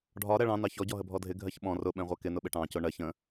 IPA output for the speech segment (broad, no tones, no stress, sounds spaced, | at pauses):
ɖʱ ɒ ɾ ɛ ɭ ɑ̃ n ɑ ç ɔ ɟ ɔ ɦ ə bʱ ɔ dʱ ɪ ɡʱ ɜ ç ɓ ɔ̃ r ʊ ɓ ɛ̃ ʁʷ ɜ k ɪ n ʊ ɓ ɪ ʈ ɑ̃ c ʊ ɳ ɜ ç ə̃